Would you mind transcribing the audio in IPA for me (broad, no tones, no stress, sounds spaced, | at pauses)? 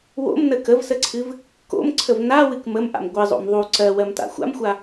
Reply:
w o̰ m n ə k ə v s ə ǀʰ ɨ v | k o̰ m ǀʰ ə v n a w ɨ k m ə m ʔ a̰ m ɡʷ ɨ zˤ o̰ m ðˤ u ǀ ɜ w ɜ m t a̰ xʷ a̰ m xʷ a